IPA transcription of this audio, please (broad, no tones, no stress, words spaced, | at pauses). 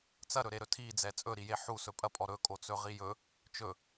t͡sɐɾɵɾeɾɵ tʰid͡zɛ t͡sʼɵɾije ħusɵ pʼɐpʼɔ ɾɵkʼot͡sɵʁi jɵ | t͡ʃɵ